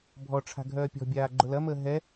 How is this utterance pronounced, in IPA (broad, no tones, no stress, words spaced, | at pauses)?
bʱɔʈ͡ʂʰa̤ ɡʱœːpʲɔ̤bʲaː ɡ͡ǃʊlɐməː ɦɛ